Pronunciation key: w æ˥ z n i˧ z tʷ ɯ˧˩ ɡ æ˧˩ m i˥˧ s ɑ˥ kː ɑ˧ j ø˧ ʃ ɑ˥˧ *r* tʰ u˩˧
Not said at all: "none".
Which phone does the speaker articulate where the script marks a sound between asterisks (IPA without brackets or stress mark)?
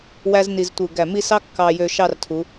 r